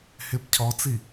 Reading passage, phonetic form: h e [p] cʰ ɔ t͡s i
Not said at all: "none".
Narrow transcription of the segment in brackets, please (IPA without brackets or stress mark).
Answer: p